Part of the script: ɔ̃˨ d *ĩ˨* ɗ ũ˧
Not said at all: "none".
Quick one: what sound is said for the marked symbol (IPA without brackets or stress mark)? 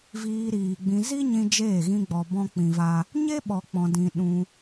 ĩ˨